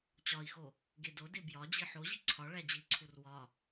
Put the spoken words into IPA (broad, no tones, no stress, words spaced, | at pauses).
t͡ɕɒi̯xo | ɡedode bjɒd͡ʑi ħoʑi ǀʰɒ ɭæd͡ʑiǀʰur wɒ